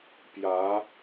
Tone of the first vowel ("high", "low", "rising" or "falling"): rising